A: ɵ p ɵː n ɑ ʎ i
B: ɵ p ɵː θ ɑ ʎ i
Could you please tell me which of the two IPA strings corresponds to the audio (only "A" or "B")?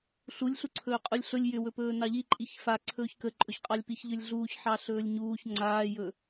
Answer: A